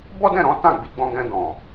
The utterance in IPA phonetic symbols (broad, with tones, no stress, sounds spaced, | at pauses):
b ɔ˦ d ɛ̃˦˨ ɾ ɔ̃˨˦ t ã˦˨ ɡ͡b i˧ ɡ͡b ɔ̃˧ ɡ ɛ̃˧ d ɔ̃˨